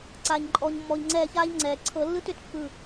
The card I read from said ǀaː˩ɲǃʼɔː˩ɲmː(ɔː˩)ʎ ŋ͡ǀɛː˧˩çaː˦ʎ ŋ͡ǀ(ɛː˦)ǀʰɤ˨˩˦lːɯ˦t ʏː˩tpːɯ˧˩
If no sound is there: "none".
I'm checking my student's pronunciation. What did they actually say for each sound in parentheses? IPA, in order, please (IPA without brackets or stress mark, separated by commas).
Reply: ɔː˩, ɛː˩